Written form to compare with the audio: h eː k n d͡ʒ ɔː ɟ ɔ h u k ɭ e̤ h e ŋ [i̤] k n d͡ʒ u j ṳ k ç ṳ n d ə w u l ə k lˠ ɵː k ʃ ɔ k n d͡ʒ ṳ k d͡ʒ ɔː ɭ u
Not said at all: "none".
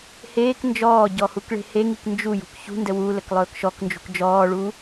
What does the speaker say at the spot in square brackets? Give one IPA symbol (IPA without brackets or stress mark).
i